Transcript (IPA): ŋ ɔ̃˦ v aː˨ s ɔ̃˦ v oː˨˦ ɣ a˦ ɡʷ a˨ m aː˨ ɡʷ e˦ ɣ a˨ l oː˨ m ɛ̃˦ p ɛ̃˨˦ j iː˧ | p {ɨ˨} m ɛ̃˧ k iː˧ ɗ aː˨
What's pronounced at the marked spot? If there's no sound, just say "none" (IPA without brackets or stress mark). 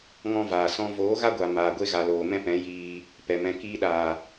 ɛ˨